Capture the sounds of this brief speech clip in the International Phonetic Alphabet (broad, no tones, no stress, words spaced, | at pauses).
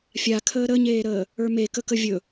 fʲakʰəː ɾəɲeːɾəː | ə˞mekəkə vʲɵ